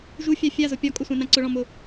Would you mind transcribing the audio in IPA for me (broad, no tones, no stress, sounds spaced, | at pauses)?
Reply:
ʒ u fʲ a fʲ a z ʊ pʲ ɒ kʼ ʊ sʷ ã n ã ǀ ʊ ɭ ɔ̃ m ʊ